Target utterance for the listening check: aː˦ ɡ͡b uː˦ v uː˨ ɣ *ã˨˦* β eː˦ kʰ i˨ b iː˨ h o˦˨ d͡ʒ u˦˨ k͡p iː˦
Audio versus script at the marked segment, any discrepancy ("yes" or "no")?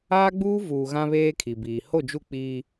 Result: yes